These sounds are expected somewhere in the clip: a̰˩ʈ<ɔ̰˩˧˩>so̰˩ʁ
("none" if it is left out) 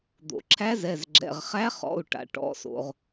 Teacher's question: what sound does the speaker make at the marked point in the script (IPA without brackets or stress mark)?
ɔ̰˩˧˩